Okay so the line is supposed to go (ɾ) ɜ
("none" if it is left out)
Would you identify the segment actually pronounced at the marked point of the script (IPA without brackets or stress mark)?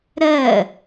ɾ